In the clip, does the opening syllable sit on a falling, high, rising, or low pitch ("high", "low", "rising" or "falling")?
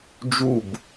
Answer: falling